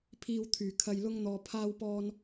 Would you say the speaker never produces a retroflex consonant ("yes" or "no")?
yes